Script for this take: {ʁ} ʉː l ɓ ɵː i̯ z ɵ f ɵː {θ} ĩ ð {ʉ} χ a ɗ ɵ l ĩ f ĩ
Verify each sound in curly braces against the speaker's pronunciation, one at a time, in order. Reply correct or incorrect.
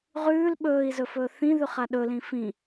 correct, correct, correct

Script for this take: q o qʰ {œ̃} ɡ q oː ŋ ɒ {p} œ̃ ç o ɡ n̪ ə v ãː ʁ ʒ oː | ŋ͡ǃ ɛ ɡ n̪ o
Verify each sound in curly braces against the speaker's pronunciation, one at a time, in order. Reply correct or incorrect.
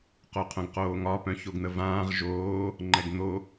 correct, correct

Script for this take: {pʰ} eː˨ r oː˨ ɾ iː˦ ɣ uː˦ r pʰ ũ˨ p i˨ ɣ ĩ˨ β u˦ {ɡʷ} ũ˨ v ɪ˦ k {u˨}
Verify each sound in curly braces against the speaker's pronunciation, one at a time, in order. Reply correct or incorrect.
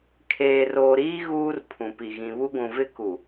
incorrect, correct, correct

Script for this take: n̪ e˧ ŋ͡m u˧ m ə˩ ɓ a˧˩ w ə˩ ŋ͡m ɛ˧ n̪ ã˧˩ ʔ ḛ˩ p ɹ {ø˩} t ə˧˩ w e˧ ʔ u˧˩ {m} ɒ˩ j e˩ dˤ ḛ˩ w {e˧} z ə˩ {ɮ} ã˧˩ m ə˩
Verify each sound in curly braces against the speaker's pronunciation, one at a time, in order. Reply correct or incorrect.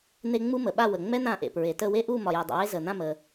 incorrect, correct, correct, incorrect

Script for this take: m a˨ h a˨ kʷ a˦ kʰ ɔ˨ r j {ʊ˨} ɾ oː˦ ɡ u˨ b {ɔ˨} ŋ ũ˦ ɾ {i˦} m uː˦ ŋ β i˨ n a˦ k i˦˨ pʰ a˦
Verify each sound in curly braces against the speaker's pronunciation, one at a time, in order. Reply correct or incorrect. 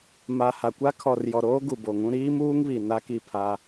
incorrect, incorrect, incorrect

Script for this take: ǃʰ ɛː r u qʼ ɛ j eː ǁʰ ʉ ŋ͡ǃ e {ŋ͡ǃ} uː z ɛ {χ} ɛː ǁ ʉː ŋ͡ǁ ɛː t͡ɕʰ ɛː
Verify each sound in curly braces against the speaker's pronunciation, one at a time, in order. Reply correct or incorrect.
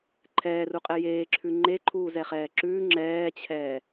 incorrect, correct

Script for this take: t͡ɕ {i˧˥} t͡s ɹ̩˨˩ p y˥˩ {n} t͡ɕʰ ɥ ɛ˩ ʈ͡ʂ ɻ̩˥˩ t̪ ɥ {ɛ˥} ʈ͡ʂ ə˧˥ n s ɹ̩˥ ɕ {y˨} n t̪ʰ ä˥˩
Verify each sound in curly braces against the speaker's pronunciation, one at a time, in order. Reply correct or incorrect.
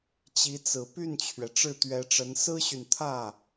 correct, correct, incorrect, correct

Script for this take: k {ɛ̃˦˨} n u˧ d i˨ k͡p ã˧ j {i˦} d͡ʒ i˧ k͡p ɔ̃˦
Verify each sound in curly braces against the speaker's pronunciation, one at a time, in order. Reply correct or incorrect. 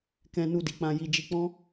incorrect, incorrect

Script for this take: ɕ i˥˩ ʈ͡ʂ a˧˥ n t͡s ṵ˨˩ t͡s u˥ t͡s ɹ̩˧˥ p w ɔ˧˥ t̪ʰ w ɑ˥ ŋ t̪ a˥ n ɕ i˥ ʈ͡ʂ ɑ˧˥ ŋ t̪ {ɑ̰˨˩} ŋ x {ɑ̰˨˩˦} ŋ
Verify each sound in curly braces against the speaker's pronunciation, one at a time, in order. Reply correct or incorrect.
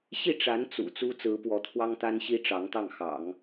incorrect, correct

